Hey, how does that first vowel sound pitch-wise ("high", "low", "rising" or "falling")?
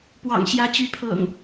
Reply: low